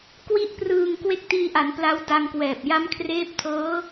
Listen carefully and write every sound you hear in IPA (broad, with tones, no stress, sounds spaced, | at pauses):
k w i˥˩ ʔ p r ɯː˧ ŋ k w e˥˩ k̚ t iː˧ ʔ a˩˦ n p l a˦˥ w d a˧ ŋ k w ɛː˨˩ p̚ j a˦˥ m kʰ r eː˦˥ p̚ tʰ ɤː˦˥